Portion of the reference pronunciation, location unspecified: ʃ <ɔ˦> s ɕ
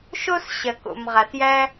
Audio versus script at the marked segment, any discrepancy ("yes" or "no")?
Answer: yes